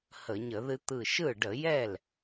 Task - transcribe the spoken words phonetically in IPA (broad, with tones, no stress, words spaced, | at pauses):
hə˧˩˧ɲə˧˩˧ðɨ˦ t̪ɯ˧˩ʃɯ˥˩ ɖə˧˩˧jɛ˥˩l